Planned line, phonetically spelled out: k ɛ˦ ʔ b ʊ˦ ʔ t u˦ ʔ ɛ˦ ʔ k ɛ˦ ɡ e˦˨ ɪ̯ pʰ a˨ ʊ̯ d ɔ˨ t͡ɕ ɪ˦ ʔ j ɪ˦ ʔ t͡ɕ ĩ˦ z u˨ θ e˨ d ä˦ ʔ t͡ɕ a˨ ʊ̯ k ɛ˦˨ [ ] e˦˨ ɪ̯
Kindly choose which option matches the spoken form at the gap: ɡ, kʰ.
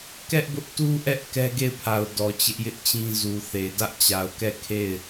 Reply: kʰ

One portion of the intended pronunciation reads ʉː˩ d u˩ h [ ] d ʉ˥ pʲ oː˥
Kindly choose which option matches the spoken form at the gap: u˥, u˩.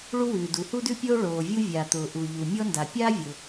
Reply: u˥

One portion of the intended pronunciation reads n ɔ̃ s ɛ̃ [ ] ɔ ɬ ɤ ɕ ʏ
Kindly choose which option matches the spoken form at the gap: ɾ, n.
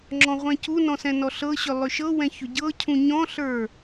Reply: n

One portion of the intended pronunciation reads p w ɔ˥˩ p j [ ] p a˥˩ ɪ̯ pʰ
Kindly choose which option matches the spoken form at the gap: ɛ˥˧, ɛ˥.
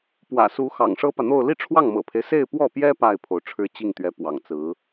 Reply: ɛ˥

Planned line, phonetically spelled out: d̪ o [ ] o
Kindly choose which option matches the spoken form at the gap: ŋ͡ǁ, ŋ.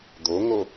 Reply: ŋ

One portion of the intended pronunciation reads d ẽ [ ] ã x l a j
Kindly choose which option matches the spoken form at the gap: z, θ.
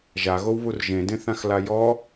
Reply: θ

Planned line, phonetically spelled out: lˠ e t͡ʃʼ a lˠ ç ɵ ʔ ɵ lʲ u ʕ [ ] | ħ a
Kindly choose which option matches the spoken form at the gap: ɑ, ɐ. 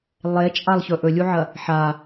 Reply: ɐ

